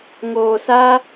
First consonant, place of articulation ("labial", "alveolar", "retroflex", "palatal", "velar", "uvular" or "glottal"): velar